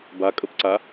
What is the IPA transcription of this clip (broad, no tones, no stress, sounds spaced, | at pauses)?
b a kʼ ə p ǀ a